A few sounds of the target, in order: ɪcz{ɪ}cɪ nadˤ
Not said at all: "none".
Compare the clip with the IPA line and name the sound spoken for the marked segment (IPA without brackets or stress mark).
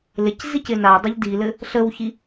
i